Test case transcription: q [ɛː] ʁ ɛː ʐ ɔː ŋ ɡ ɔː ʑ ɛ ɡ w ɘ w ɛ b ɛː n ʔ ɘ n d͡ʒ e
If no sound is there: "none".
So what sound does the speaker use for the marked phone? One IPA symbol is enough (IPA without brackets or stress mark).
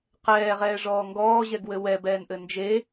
ɛː